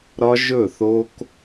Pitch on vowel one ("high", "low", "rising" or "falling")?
high